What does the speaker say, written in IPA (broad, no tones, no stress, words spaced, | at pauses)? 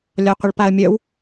lʲɒqʷəɭpaə̯mʲœw